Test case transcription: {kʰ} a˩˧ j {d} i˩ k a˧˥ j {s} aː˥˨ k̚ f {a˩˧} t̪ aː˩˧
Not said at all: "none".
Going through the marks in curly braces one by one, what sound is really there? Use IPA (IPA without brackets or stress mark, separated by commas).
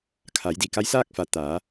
kʰ, d, s, a˩˧